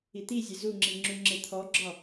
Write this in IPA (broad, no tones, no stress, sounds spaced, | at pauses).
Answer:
i t̪ i zʲ e z u ŋ͡ǁ i ŋ͡ǁ u ŋ͡ǁ e t̪ʰ ɔ ɡ͡ǁ ɒ